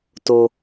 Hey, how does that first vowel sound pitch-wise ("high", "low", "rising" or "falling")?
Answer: high